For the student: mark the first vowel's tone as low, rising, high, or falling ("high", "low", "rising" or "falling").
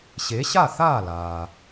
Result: rising